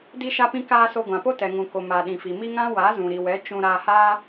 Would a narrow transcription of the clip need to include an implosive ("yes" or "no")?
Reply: yes